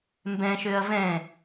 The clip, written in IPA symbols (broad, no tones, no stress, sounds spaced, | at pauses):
m b ɛ̃ ʃ ø ɐ̯ v ɛ̃